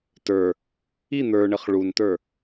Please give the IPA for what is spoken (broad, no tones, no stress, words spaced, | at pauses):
tə˞ | i n̪ə˞ɳɘχ ɭuntə˞